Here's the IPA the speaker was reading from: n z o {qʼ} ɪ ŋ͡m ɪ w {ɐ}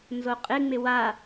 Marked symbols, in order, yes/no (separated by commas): yes, no